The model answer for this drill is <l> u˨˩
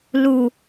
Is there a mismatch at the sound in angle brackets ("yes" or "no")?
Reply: no